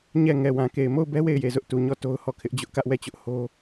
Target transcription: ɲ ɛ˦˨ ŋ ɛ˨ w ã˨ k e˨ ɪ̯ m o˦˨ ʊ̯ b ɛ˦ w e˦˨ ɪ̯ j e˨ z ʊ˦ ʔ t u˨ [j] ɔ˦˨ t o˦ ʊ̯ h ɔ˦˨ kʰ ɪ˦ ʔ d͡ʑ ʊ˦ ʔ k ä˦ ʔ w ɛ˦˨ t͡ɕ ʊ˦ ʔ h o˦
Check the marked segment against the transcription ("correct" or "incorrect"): incorrect